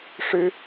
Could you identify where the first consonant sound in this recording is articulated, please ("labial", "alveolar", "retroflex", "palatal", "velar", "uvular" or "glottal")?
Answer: retroflex